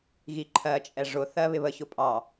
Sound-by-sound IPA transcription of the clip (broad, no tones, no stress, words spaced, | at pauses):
ɣiǃʰɜt͡ʃʼɛ ʐʊθɜ βɪβəçʊ pʼɑ